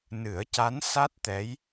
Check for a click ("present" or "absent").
absent